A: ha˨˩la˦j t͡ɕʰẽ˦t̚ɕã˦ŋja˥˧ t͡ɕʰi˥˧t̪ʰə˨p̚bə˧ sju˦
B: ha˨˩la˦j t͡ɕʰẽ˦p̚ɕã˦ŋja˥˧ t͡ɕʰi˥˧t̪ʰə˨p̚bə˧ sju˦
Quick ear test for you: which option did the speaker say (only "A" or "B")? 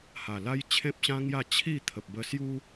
B